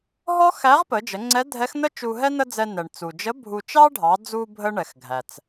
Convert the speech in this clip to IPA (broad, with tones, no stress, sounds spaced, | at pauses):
ɦ ɔ˥ x æ˧˥ ʁ p ə˩˧ d͡ʒ ə˩˧ ŋ͡ǀ ɛ˧˥ dʱ ɛ˧˥ x n ə˥ t͡ʃ u˧ ɦ ɛ˥ n ə˥ d͡z ɛ˧ n ɛ˩ ɳ t͡s u˩ d͡ʒ ə˧˥ bʱ u˧ t͡ʃ ɑ˥ ɖʱ ɑ˩˧ d͡z u˧ bʱ ə˥ ɳ ɛ˩ x ɡʱ æ˩ t͡s